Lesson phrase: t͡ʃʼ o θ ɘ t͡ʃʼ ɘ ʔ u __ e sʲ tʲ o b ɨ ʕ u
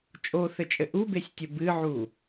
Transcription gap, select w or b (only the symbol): b